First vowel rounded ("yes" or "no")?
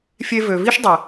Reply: no